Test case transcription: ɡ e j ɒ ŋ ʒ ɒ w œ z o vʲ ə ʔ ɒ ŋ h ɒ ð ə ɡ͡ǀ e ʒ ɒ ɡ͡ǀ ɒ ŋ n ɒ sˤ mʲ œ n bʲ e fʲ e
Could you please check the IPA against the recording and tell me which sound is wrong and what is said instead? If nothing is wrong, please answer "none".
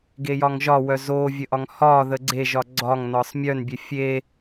none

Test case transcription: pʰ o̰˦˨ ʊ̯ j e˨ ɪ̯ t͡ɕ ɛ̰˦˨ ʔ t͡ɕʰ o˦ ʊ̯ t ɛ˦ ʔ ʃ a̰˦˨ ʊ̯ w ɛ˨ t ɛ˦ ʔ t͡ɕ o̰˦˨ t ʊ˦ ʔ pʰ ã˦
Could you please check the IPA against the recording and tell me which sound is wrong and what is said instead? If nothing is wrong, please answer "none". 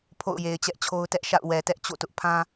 ɛ̰˦˨ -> ɛ˦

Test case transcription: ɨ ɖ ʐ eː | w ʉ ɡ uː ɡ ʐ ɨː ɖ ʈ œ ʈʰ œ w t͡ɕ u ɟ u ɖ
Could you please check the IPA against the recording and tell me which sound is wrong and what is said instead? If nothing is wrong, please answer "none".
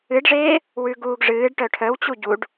none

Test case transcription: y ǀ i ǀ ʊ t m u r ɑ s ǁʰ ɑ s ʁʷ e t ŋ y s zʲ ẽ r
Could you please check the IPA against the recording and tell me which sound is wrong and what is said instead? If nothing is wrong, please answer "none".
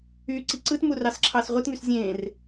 ʊ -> ɯ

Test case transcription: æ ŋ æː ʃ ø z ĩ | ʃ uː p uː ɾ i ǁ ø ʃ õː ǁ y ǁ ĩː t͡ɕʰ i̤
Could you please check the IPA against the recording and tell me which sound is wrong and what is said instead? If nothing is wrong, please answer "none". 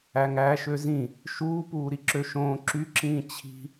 none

